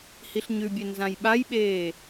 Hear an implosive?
yes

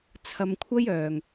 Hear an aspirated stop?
yes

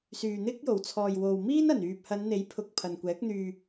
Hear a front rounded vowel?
yes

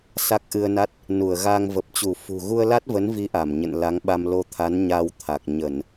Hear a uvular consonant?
no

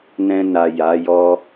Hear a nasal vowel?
yes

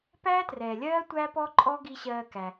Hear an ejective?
yes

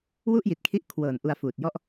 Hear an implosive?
no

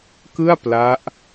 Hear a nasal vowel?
no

